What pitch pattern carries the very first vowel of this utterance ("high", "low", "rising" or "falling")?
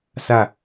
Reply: falling